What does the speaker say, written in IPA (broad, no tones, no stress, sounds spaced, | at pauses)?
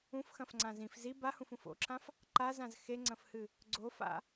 ũ f x ɐ̃ f ŋ͡ǀ ã z ĩ f z i b a h ũ f ũ f o̰ ǁʰ ã f | ǃ a z ã z x e ŋ͡ǀ ɐ̃ f h ɨ | ɡ͡ǀ o f a̰